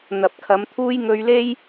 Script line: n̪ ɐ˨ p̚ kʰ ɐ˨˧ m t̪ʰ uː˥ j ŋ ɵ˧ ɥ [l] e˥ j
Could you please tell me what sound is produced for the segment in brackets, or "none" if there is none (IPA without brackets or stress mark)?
l